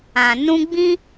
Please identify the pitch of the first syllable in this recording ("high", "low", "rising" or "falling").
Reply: low